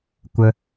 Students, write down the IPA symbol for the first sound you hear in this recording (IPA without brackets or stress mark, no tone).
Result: kʷ